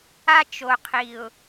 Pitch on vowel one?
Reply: high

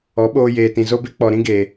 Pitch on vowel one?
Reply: rising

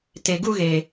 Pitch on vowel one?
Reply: low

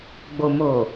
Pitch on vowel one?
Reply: low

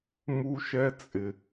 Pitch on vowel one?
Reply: high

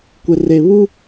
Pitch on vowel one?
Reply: low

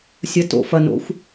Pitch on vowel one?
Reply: rising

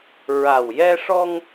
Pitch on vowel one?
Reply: low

